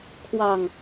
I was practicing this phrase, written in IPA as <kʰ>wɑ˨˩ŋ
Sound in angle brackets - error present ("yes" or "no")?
no